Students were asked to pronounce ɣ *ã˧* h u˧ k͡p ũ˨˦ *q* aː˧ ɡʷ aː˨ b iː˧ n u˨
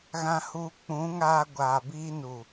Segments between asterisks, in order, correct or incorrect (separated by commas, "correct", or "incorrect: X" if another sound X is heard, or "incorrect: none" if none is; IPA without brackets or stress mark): correct, incorrect: ŋ